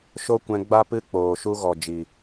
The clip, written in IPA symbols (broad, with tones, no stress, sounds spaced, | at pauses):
ʃ o˦ kʷ ɛ̃˧ ɡ͡b a˦ p ɨ˦ k͡p oː˨ ʃ u˦ ɣ ɔ˨ d͡ʒ i˨